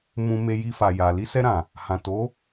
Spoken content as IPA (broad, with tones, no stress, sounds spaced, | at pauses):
m ũ˧ m e˧ j i˧ f a˨ j a˨ l i˧ s ɛ˧ ɾ ã˨ | h ã˨ t o˨˦